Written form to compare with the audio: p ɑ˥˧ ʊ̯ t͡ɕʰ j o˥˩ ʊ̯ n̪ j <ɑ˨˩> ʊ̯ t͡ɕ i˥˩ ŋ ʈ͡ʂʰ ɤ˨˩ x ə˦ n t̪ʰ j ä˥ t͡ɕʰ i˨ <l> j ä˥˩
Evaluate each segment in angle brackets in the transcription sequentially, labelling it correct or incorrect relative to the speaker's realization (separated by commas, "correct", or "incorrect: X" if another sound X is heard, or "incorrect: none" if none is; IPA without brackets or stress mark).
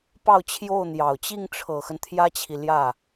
correct, correct